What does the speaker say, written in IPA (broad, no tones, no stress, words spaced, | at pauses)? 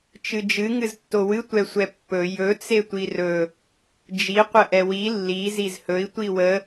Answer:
t͡ʃɨd͡ʒɨ ŋɨztːowɨ tʷɛsʷɛpːɵ jɵ t͡setʷirɵ | d͡ʒi qʷəʔɛwi lːi zizhɵi̯ tʷiwə